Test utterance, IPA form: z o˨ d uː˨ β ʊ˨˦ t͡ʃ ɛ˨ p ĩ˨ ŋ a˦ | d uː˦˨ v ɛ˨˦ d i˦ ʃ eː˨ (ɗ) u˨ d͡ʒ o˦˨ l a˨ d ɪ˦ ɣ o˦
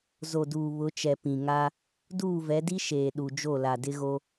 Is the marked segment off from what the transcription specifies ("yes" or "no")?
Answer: no